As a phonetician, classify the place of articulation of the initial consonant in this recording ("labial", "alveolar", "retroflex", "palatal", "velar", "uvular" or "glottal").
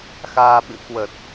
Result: velar